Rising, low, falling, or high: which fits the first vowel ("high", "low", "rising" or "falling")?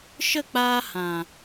falling